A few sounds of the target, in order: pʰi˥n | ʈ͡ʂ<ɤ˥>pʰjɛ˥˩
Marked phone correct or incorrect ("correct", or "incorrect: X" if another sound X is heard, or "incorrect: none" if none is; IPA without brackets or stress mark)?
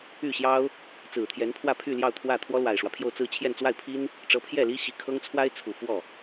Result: incorrect: ɤ˧˥